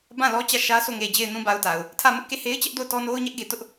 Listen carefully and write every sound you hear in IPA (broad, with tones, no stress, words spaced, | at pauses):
bã˦˨ lɔ˦t͡ɕä˦˨ʃä˦ sʰo˦˨ŋe˨ d͡ʑe˨ɪ̯nũ˨ba˨ʊ̯ ta˨ʊ̯ | tʰä˦˨mʊ˦ʔke˦˨ he˦ɪ̯t͡ɕɛ˦ʔ do˦˨ʊ̯tɔ˦no˦ʊ̯ ɲɛ˦ʔɡe˨ tʊ˦ʔ